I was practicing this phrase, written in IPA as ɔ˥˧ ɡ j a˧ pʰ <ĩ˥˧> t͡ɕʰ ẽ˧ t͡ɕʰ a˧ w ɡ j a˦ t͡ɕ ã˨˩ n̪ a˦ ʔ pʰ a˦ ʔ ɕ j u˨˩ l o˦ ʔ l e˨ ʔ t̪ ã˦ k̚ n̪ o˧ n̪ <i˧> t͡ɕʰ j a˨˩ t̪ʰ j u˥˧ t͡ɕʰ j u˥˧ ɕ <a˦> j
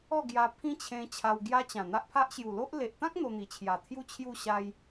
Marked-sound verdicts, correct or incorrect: incorrect: ĩ˦, incorrect: i˨˩, incorrect: a˧

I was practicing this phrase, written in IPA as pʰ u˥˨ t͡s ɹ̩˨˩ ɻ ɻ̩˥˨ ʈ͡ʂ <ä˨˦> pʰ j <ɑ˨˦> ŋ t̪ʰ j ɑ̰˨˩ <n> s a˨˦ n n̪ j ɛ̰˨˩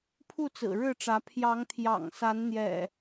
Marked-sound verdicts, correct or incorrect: correct, correct, incorrect: ŋ

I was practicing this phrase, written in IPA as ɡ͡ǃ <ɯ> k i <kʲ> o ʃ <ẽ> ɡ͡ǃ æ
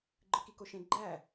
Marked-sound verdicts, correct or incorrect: correct, incorrect: k, correct

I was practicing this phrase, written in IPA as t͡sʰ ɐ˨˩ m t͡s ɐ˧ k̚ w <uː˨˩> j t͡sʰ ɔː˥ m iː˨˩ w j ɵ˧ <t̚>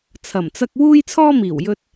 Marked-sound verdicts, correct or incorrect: incorrect: uː˥, correct

